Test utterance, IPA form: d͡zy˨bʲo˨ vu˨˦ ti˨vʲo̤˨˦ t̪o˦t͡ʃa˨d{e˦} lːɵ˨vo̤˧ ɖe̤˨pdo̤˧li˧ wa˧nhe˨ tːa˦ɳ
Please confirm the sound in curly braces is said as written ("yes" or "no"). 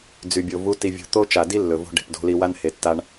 no